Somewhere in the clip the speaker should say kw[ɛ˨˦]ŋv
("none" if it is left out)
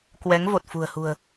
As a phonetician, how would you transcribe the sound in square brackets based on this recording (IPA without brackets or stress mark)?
ɛ˨˦